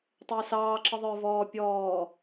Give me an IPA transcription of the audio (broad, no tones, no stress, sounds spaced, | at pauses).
tˤ əː s ɑː ǁ ə ðˤ ə˞ v ɔː pʲ ɔː